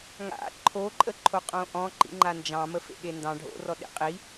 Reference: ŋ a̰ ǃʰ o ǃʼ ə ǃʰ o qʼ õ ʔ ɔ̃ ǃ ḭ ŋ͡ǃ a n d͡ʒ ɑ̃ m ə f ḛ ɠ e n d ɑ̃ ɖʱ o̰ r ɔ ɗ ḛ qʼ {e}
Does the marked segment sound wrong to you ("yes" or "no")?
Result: yes